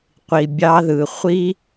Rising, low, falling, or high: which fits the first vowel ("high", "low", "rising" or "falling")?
low